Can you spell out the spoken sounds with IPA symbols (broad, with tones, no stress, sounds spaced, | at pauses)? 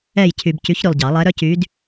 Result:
ɛ˦˨ j cʰ y˨ b c y˧˥ ç ɾ y˨ lˠ ɟ ɑ˨˩˦ lˠ ɛ˧˥ ɾ œ˥ c y˧˥ d